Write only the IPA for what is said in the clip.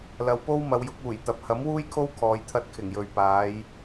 l ɐ˨ w p o˥ w m ɐ˨˧ w j ʊ˨˥ k̚ uː˨˩ j t̪ ɐ˨ p̚ h ɐ˨˥ m w uː˥ j kʰ o˥ w kʰ ɔː˧ j t̪ʰ ɐ˥ t̚ kʰ ɪ˨˩ ŋ j ɵ˨ ɥ p aː˨˥ j

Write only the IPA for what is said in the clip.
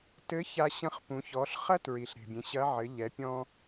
t ɘ˧˥ ç a˧ ɕ ɐ̃˧˥ χ p ũ˩˧ ç ɔ˩˧ ɬ χ ɐ˥ t ɹ i˩ ɬ ɾ e̤˩ bʲ ẽ˩˧ ɕ ɐ˧˥ ʕ ɘ˩˧ ʎ ɛ˩˧ pʲ ɔ̃˧

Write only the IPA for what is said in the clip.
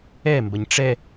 ɛ m b ɐ ɲ ʈ͡ʂ ɛ

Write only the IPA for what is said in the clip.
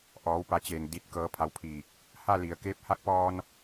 ʔ ɔː˩˧ w p a˩˧ t͡ɕ eː˩ ŋ d i˧˩ t̚ k ɤː˧˥ pʰ a˧˥ w pʰ iː˧˩ k̚ | h a˥˨ l i˩ ə̯ k eː˧ p̚ h a˧˥ k̚ p ɔː˧ n

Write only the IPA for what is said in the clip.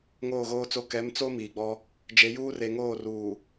ŋ oː˦˨ ɣ oː˦ t͡s o˦ k ɛ˨˦ m t͡s o˦ m iː˨ ɡ͡b ɔ˦ | d͡ʒ e˨˦ j uː˦ r e˨ ŋ oː˦˨ r uː˨

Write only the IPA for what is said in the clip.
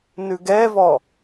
n ʉ ɡ ɛ v ɔ

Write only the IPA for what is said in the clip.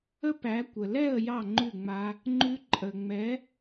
ə˦˥ p æ˨˦ kʷ ə˨ l ɛ˥˨ ə̯ j ɑ˥˨ ŋ͡ǃ ʉ˥˨ ŋ͡m a˦˥ | ŋ͡ǃ ʉ˦˥ ǃʼ ə˨ ŋ͡m ɛ˨˦

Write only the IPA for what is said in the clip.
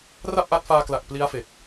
r a˥˩ p̚ ʔ a˦˥ t̚ f aː˧ k l a˨˩ k̚ p l i˦˥ a̯ f e˨˩ k̚

